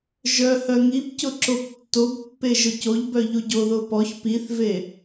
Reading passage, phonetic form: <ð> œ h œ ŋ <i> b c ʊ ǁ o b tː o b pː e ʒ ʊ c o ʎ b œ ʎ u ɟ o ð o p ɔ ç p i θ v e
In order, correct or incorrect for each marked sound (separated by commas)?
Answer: incorrect, correct